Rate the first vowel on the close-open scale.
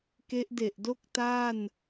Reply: mid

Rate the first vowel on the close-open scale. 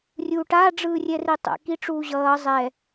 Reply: close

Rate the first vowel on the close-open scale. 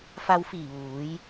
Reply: open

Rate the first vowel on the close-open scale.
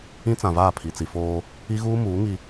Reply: close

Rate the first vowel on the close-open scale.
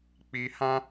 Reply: close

